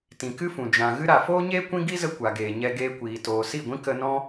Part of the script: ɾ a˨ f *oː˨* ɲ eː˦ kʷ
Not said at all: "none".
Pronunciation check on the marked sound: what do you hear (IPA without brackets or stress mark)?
oː˦